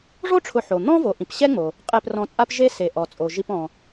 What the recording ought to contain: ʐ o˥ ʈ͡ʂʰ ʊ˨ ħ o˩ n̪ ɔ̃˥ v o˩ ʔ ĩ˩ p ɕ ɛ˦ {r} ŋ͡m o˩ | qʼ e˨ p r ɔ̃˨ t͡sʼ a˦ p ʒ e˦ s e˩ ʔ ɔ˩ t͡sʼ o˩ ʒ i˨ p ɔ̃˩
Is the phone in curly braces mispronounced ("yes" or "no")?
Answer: yes